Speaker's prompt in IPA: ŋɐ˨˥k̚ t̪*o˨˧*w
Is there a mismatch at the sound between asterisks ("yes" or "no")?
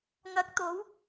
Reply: no